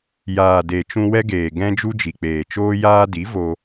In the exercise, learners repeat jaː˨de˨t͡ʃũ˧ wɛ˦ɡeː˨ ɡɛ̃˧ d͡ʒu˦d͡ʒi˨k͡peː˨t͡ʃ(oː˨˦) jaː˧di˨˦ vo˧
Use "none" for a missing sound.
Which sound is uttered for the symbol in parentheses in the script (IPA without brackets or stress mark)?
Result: oː˦